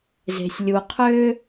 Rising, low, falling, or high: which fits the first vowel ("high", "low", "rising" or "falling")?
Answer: low